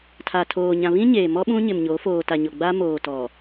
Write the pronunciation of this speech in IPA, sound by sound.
tʰ a˨ tʰ oː˨ ɲ ã˨ β ĩ˦ ɲ eː˨ m ɔ˦ ɓ ũ˦ ɲ ɪ˨ m ɲ o˨˦ f oː˨ t a˨ ɲ o˨ ɡ͡b a˦ m oː˨ t ɔ˨

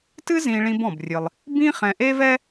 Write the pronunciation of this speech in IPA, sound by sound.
t ɨ˥ z ĩ˧ ɭ ĩ˧ b ɔ̃˩ b rʲ ɨ˩ lˠ | b ĩ˥ χ ɛ̃˧ ʔ e˥ v ɛ˥

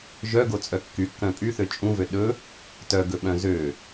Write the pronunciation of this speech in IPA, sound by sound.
ʒ œ ɡ o t͡sʼ œ kː y kː œ̃ pʼ y θ ø t͡ʃʼ ũ v ø ɗ ɵ | t œ ɡ ɵ ɓ œ̃ z ø

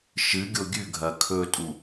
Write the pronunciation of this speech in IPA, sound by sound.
ʃ ɨ ɡʲ o ɡʲ ʉ ɡʱ ɐ kʰ ɵ tʼ u

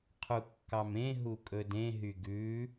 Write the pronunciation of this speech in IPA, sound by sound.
qʰ u kː ɑ m ẽ ɦ u kʼ ɵ d ẽ ɦ y ɡ ʉ

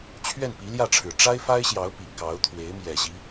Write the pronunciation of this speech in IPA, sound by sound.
t͡ɕʰ ɥ ɛ˥˩ n p i˧˥ l j ä˥˩ ʈ͡ʂʰ ɻ̩˨˩ ʈ͡ʂ a˥ ɪ̯ f a˥ ɪ̯ ɕ j ɑ˧˥ ʊ̯ p i˨˩ k ɑ˧˥ ʊ̯ t̪ʰ w e˧˥ ɪ̯ m j ɛ˨˩ ɕ i˦

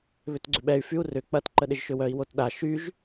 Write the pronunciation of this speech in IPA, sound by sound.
β ʏ t ɡ͡ǀ ʏ ɓ ɛ y̯ f y u̯ r ʏ k͡p ɐ t ǃ ə ɗ ɪ ʒ ʃ ʏ w œ i̯ w o t ɗ a ʃ y ʒ

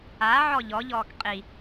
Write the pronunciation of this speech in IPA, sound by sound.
a ʕ ɔ ʎ ɔ ʎ ɔː k qʼ i

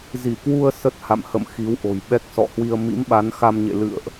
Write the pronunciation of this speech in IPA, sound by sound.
z i˧˩ k w u˧ ə̯ s ə˦˥ t̚ h a̰˧˨ m h ə̰˧˨ m x i˨˦ w ʔ o̤˨˩ j ɓ ɛ˦˥ k̚ s ɔ̰˧˨ h w i˧ ə̯ m ḭ˧˥ m ɓ a˨˦ n x a˧ m ɲ ḛ˧˨ l ɨ̰˧˨ ə̯ ʔ

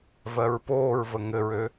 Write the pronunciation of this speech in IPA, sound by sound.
v ɜ ɹ p oː ɹ v ə ŋ ɘ ɹ ø

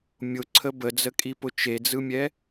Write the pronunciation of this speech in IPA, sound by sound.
mʲ ʊ ǀʰ ə b ə d͡z ə kʼ i p ʊ t͡ʃ e d͡z ɯ mʲ ɛ

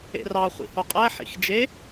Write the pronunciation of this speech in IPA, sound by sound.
ḛ r ɑ χʷ ḭ h o qʼ æ ħ ḭ x d͡ʒ e

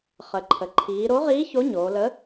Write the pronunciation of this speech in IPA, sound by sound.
χ ə˩˧ ǃʰ ə˩˧ ǃʰ iː˩˧ ɾ o˨˥ ʁ iː˨˥ ç o˨˥ ɲ oː˩˧ l ə˨˥

